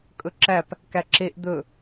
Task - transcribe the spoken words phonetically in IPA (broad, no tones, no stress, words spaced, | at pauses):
kʼɵǁæp | kæǁeʔ d̪ɵ